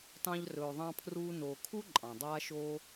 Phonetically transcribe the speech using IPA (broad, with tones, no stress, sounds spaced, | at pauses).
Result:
t ɑ̃˦ ʎ r ɵː˨ ðˤ ɑ̃˦ pʰ r uː˦ n oː˨ kʰ u˥ ǃʼ ɑ̃˩ dˤ aː˦ ʃ oː˦